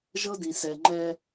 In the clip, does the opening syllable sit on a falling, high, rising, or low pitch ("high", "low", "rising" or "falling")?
high